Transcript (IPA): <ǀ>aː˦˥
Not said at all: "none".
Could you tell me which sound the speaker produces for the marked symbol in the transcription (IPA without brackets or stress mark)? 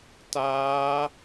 t